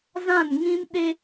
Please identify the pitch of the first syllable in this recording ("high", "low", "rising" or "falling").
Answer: falling